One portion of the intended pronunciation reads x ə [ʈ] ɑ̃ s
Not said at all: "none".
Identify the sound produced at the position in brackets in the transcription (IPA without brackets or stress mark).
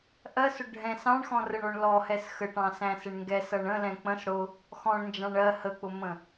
ʈ